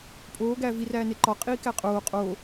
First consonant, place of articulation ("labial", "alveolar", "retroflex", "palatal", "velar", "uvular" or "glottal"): labial